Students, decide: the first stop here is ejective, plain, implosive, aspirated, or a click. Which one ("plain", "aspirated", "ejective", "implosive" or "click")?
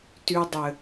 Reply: plain